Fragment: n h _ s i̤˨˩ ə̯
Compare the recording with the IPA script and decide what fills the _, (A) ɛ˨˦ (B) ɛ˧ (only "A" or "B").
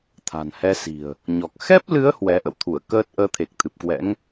B